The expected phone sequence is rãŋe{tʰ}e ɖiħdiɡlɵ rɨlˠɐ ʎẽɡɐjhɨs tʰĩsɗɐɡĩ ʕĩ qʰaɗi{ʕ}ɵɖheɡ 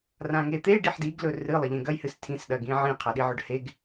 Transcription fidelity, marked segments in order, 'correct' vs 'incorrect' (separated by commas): incorrect, correct